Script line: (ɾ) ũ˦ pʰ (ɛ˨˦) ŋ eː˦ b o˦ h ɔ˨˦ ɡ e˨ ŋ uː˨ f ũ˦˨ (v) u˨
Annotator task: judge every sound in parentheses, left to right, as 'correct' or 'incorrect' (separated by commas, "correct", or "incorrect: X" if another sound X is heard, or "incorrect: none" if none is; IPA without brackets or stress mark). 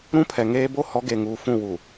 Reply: correct, incorrect: ɛ˨, incorrect: w